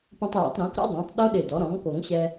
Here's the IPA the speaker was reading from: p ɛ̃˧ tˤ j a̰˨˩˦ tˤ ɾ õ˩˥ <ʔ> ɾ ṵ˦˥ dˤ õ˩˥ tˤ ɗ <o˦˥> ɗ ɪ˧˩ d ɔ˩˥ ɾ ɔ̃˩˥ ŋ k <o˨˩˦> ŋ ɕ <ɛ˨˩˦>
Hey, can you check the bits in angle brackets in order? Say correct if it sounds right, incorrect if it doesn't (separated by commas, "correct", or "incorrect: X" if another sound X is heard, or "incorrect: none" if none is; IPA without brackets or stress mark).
incorrect: k, correct, correct, incorrect: ɛ˧